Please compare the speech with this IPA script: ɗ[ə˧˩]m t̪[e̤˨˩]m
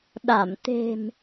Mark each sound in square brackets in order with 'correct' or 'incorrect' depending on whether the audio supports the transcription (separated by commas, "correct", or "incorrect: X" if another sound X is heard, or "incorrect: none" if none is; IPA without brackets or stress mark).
incorrect: a˧˩, correct